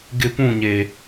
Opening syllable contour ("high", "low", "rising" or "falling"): falling